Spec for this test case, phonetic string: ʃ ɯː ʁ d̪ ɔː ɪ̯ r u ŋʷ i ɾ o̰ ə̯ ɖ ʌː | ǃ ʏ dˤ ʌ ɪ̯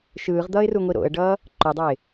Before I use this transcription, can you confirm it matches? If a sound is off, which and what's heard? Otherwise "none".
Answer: ɔː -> ʌː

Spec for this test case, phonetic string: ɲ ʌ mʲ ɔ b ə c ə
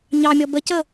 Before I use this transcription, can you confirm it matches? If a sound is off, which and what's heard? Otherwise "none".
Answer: ʌ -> ɑ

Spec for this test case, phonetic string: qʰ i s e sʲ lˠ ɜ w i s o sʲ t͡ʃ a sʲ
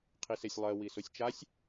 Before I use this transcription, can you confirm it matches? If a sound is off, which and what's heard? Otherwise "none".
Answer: none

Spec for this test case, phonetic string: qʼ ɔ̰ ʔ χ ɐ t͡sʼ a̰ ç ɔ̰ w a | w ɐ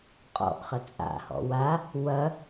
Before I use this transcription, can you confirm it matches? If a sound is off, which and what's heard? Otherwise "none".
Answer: ç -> h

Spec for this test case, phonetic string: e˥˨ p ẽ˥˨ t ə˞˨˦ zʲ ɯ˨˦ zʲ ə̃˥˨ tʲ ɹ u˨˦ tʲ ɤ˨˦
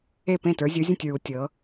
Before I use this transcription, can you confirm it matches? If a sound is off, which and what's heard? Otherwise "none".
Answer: none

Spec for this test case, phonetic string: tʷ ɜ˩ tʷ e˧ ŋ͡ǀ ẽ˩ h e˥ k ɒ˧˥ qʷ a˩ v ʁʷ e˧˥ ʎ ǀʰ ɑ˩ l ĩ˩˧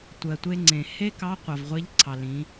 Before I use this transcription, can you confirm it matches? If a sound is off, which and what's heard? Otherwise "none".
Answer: ɒ˧˥ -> ɑ˧˥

